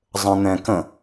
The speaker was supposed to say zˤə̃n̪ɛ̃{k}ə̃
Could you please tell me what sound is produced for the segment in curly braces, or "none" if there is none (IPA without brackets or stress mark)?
k